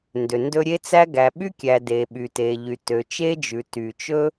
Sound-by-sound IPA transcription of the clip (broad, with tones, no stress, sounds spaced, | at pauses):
n d ø˩ n d ɵ˥ ɾʲ e˥ t͡s æ˥ ɡ æ˩ ɓ y˥ kʲ æ˩ d e˩ ɓ y˩ t e˩ ʎ y˩ t ø˩ t͡ʃ e˥ d͡ʒ ʉ˩ t y˩ t͡ʃ ɵ˥